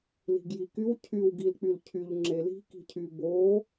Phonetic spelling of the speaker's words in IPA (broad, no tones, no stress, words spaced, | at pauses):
li̤ɡjikyw cʰyw ɡilk͡pylcʰyʎ ŋ͡ǁeli̤ ki̤cʰyboː